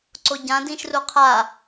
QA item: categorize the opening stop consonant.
click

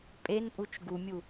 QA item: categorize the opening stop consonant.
ejective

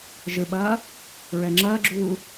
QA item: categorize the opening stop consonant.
implosive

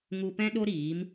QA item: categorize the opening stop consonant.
plain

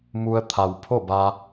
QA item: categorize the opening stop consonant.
aspirated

